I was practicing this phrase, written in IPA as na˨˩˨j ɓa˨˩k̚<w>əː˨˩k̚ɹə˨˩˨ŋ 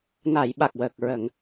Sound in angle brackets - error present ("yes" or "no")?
no